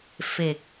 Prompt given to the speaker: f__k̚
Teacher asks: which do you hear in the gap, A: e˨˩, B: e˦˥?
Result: A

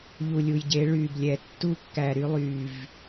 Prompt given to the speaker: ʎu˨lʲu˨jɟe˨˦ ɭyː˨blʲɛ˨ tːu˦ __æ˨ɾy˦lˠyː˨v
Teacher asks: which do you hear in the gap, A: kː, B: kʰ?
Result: A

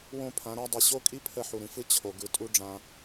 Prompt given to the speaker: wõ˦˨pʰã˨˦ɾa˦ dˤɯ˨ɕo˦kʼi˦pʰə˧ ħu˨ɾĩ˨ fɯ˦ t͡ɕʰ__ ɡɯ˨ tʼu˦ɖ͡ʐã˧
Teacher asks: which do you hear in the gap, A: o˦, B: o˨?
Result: B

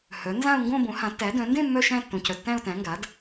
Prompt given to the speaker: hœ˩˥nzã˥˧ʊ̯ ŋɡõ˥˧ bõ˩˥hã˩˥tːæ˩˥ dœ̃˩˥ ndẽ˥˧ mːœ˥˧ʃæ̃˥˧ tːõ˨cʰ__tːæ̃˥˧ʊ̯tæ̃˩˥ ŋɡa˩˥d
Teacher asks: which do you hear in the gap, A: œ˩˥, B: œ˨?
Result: B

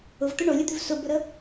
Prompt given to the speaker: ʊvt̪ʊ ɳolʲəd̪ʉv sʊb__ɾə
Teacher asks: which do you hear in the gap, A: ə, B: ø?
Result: A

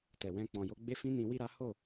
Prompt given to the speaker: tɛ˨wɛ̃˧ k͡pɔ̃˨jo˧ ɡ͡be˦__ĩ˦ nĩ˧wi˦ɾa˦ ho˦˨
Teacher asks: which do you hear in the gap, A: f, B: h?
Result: A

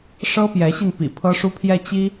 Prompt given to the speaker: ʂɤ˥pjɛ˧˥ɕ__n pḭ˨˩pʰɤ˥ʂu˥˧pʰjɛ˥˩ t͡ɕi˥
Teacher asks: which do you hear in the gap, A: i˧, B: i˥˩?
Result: A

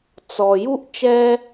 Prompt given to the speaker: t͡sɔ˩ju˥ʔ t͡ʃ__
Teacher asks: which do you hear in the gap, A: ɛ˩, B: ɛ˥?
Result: B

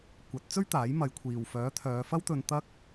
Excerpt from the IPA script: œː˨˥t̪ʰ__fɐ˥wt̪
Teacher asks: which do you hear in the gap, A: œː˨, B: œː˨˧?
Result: B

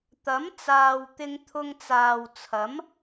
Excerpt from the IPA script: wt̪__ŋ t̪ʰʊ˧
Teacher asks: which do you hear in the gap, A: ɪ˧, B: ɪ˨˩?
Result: A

